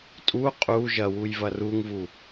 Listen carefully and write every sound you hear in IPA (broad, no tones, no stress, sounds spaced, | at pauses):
tʼ u qʼ u ʒ ɐ w u j v ɐ r u ŋ v u